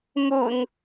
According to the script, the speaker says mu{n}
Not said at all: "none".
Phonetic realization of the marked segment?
n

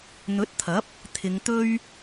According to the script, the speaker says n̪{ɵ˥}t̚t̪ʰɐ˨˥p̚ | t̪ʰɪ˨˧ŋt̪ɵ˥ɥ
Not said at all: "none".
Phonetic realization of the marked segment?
ɵ˨˥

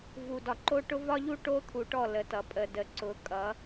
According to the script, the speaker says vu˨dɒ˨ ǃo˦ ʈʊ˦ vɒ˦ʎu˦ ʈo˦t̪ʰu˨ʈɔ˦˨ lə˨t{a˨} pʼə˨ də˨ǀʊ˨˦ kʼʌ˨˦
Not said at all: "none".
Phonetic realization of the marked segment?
ʌ˨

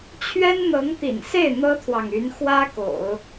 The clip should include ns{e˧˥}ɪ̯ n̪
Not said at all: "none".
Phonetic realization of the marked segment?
e˥˩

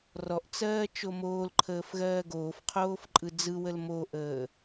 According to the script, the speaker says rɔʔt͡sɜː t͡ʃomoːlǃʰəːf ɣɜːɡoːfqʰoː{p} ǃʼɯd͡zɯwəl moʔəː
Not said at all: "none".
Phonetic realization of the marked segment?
f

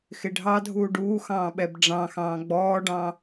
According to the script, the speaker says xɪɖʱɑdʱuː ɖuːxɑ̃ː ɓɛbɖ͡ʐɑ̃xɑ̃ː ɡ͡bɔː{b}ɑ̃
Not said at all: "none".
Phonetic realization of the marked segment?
ɖ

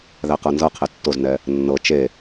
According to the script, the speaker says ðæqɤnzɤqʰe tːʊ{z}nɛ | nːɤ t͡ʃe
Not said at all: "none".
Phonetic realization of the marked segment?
z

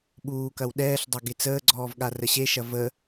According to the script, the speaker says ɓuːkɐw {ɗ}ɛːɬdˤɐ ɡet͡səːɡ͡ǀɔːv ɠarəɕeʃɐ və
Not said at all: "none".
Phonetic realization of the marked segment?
ɗ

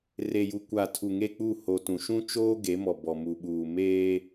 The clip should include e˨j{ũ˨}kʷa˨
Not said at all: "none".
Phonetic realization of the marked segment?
u˨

